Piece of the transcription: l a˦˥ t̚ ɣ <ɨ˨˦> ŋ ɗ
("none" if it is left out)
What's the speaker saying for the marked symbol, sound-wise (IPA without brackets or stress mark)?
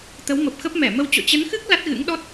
ɨ̰˧˥